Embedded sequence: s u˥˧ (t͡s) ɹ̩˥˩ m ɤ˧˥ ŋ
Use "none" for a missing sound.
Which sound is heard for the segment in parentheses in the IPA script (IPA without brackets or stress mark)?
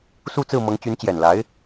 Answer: t͡s